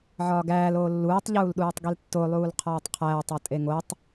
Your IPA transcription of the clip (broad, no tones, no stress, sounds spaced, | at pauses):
ʕ ɒː ɡ æː l oː lː uː tˤ ʎ uː l ɗ uː tˤ ɡ i l tː o lˠ uː l qʰ ɒː tˤ qʰ æː tˤ ɒ tʼ e ŋ o tˤ